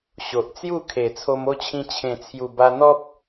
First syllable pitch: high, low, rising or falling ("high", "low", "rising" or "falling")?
low